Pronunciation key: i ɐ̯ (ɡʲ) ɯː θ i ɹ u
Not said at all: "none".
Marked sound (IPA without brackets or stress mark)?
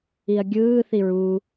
ɡʲ